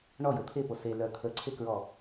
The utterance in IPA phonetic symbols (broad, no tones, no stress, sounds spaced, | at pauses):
ɳ ɔ j o t̪ʰ e p o s e l œ t̪ʰ ə ǀʰ e k ɹ ɔ